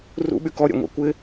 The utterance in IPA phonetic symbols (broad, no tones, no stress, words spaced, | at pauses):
rṵɓy kɔɾʲɛ̰ŋʷḛ kʷɪ